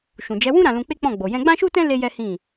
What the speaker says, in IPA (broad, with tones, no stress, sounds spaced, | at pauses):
ʃ ũ˨ d͡ʒ ɛ˨˦ w ũ˦ ɾ ã˧ l ũ˧ k͡p e˦ k͡p ɔ̃˦˨ ɡ͡b o˨ j ɛ̃˧ ɡ͡b ã˦ ʃ u˦ t ɛ̃˦ l e˦ j ɛ˦ h ĩ˦˨